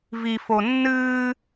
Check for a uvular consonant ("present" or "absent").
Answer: absent